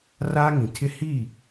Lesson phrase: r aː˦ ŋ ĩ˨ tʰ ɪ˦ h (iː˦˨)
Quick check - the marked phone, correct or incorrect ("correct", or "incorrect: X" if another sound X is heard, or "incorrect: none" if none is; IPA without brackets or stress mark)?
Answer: correct